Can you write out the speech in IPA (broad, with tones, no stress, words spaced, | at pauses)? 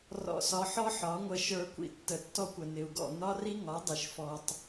rɔ̰˧sɒ˧ ħɔ˦ħɒ˨˦ŋʷə˧ ʃə˞˧kʷḭ˧ tːə˨tːɔ˧kʷə˨nɪ˨u̯ ɡɔ̰˦˨nɒ˦ri˦ ŋɒ˨˦dˤɪ˨ʃfɔ˨tˤ